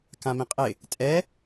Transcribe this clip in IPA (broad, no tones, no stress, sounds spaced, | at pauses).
k ã m ĩ qʼ ɪ | tʼ ɛ